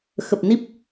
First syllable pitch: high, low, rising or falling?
low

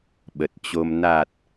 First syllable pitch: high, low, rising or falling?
low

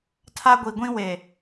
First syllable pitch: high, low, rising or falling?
high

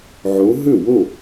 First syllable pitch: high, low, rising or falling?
rising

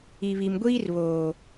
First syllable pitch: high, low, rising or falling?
low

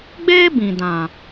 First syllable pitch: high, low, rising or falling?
high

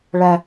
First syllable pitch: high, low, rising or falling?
high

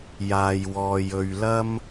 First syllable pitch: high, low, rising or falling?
low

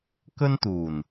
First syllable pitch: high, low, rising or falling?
high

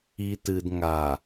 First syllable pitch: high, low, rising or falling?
low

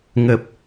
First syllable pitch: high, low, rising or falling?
low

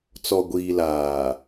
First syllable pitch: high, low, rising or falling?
low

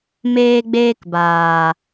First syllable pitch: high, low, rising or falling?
high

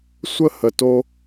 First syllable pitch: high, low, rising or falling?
high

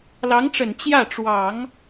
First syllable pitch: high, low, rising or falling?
rising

